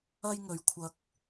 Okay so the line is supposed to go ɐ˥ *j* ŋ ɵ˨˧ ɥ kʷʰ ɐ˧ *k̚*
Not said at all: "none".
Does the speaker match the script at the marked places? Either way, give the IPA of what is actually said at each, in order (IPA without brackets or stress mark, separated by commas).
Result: j, k̚